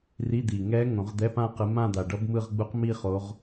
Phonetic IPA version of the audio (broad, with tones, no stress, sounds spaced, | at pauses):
r i˧˥˧ d̪ i˨˩ ŋ ɛ˦˥ ŋ õ˨˩˦ ʁ d̪ ɛ˧˥˧ p ã˥˧ q ɯ˨˦ m ã˥˧ d̪ a˨˩ ɖ ʌ˦˥ b m ɯ˥˧ ʁ ɡ͡b u˦˥ q m i˥˧ χ o˨˦ ʁ